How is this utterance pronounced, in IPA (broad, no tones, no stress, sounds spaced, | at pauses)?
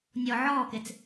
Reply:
nʲ ɔ ʕ ɔː k e t͡s